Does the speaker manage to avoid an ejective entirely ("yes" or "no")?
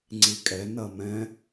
no